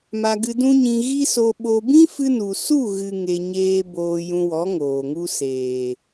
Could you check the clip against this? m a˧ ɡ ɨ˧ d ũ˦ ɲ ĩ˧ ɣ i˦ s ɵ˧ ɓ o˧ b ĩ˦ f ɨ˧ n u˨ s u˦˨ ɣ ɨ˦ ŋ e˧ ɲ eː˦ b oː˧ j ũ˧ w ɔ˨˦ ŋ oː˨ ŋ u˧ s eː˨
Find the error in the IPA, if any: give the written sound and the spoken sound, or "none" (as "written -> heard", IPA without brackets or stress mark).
ɵ˧ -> o˧